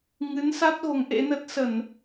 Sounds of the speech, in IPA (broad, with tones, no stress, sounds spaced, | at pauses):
ŋ ɨ˨˦ n s a˦˥ t̚ ɣ o˨˦ ŋ ʔ ḛ˧˥ n ə˦˥ t̚ s ə˧˩˨ n